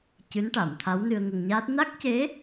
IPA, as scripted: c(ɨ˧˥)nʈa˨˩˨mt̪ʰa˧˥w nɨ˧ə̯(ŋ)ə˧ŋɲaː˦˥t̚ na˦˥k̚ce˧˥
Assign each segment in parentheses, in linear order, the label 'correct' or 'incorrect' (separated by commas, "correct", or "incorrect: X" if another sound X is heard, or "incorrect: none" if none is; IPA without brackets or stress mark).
correct, correct